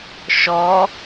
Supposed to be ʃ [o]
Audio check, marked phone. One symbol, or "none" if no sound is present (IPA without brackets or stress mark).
ɔ